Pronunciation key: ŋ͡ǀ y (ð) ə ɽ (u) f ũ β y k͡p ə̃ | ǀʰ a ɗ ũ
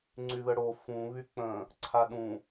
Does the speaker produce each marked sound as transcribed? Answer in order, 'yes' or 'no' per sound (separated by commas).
yes, no